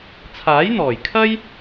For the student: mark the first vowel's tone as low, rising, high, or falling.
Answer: rising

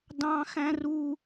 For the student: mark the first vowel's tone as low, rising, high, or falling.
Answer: high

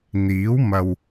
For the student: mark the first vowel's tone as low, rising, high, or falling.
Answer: rising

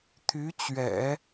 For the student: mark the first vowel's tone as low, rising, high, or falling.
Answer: rising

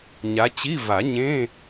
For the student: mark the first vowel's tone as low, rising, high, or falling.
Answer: rising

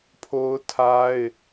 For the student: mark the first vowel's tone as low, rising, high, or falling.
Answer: high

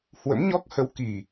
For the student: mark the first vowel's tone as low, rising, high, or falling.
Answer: rising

